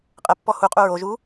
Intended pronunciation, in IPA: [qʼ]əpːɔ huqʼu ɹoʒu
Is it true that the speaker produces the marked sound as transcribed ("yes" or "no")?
yes